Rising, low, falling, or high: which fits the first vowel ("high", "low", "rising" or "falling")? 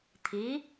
rising